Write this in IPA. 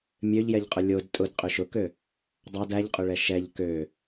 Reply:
mʲ ø ʎ j ɛ ʎ qʼ ʊ lʲ o d tʼ ʊ d qʼ ø ʃ ʊ k ø | dˤ ɑ d æ ʎ qʼ ʊ ɭ ɛ ʃ ɛ ʎ k ø

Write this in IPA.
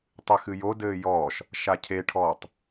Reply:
tˤ ɨ x ɨ j o d ɘː j ɔː ʃ | ʃ a cʰ e ʈʰ ɔː tˤ

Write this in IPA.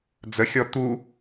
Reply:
d͡z ə xʲ ɔ t̪ u

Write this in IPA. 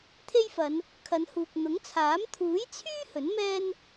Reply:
t̪ʰ e˥ j f ɐ˨˧ n | kʰ ɐ˨˧ n h uː˨ k̚ n̪ ʊ˨˥ ŋ t͡sʰ aː˨˥ m t̪ʰ uː˨˥ j t͡sʰ yː˥ h ɵ˨˥ n m ɛː˥ n

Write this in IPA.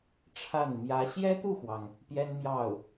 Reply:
ʈ͡ʂʰ a˥˩ n m j ä˧˥ ɕ j ɛ˥ t̪ u˥˩ x w ɑ˩ ŋ | p j ɛ˥ n m j ɑ˥˩ ʊ̯

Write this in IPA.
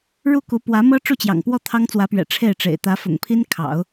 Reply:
ɻ u˥˩ k u˧˥ p w ä˧˥ m ɤ˥ ʈ͡ʂ u˥˩ t͡ɕ j ɑ̰˨˩ ŋ p w ɔ˥˩ t̪ʰ ɑ˥ ŋ t͡s w ä˧˥ p ɥ ɛ̰˨˩ ʈ͡ʂʰ e˥˩ ɪ̯ ʈ͡ʂ ḛ˨˩ ɪ̯ t̪ ä˧˥ f ʊ̰˨˩ ŋ pʰ i˥ n kʰ ɑ̰˨˩˦ ʊ̯

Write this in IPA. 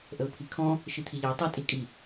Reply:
ʔ ə ʊ̯ pʰ i kʰ ɔ̃ | ʃ i t̪ʰ i ʎ ɑ tˤ ʌ tʼ i kʼ i

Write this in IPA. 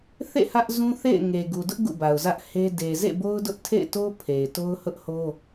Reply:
θ ḛ˦˨ h ä˦ ʔ z ũ˦ θ ḛ˦˨ ɪ̯ ŋ e˨ ɡ u˨ d ʊ˦ ʔ ɡ ṵ˦˨ b a˨ ʊ̯ z ä˦ ʔ h e˦ d e˨ z ḛ˦˨ b o˦ ʊ̯ d ʊ˦ ʔ tʰ ḛ˦˨ ɪ̯ t o˦ pʰ e˨ ɪ̯ t o˦ ʊ̯ h ʊ˦ ʔ h o˦

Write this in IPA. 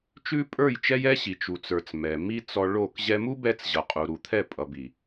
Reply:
t͡ʃ ʉ˦ pʼ ə˞˦˨ j t͡ʃ ɛ˦ j ɛ˦ ɕ i˨ t͡ʃ u˨ t͡s ə˞˨ t͡s m ɛ˨ m i˧ t͡s ɔ˧ ɭ o˦˨ k ʑ ɛ˧ m u˦ b ɛ˧ t͡s ʑ ʌ˨ qʼ u˨ ɾ u˨ t̪ʰ ɛ˦˨ pʼ ʌ˨ b i˨

